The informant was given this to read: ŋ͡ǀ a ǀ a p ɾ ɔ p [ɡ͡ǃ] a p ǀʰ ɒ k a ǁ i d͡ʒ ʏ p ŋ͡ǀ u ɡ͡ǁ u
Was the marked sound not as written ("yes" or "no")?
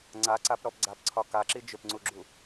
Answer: yes